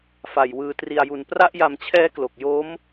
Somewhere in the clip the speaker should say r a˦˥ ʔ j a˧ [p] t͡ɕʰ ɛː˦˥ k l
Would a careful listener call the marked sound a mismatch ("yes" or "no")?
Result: yes